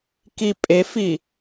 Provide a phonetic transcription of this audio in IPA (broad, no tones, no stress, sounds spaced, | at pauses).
k i pʼ e f i